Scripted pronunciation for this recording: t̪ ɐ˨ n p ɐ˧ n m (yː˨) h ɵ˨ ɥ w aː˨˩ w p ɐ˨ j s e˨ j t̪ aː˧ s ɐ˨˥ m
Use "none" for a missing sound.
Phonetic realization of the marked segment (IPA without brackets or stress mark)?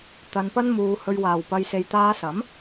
uː˨